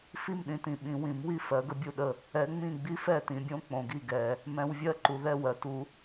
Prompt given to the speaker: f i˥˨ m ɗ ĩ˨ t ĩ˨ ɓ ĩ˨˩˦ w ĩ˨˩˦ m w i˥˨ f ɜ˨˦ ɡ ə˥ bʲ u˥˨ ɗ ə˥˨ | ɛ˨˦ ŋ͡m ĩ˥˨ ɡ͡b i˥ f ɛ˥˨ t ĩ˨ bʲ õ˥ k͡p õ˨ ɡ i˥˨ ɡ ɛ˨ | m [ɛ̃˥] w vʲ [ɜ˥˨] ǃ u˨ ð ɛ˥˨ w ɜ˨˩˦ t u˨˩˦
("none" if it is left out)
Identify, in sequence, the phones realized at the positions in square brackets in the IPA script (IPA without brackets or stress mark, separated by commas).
ɛ̃˨, ɜ˥˨